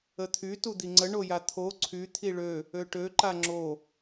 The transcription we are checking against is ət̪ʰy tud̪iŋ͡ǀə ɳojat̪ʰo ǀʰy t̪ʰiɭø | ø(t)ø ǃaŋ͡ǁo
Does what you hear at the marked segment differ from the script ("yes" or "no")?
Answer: yes